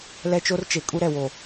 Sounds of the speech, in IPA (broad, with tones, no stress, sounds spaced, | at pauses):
l ɛ˦ t͡ʃ o˦ r t͡ʃ e˨ kʼ u˦ ɾ ɛ˨ w o˨